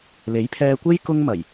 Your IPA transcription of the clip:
l e˨˥ j pʰ ɛː˧ kʷ e˥ j k ʊ˥ ŋ m ɐ˨˩ j

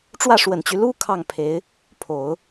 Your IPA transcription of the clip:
ʈ͡ʂ w ä˥˩ ʂ w ə˨˩ n t͡ɕ y˦ l u˥ kʰ ɑ˥˩ ŋ pʰ e˧˥ ɪ̯ | pʰ o˨˩˦ ʊ̯

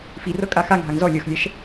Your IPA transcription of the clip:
f i r ɤ kʼ a x a ŋ ɦ a ŋ z ɔ lʲ ɤ x lʲ ɛ ʃ

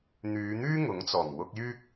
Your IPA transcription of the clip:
n̪ yː˨˧ n̪ yː˥ ŋ ʊ˨˥ ŋ t͡s ɔː˨˩ ŋ w ʊ˨ k̚ j yː˧ k̚

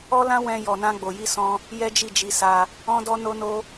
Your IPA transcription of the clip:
ɔ˦ l ã˦ w ɛ̃˧ j ɔ˨ n ã˧ ɡ͡b o˨ j i˧ s ɔ̃˧ | j ɛ˦ d͡ʒ i˦˨ d͡ʒ i˧ s a˧ | ɔ̃˦ d ɔ˦ n o˦ n o˦

